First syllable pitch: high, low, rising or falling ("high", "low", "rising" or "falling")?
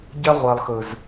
high